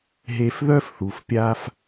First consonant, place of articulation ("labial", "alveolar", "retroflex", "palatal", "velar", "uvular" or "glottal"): glottal